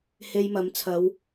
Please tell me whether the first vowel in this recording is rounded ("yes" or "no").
no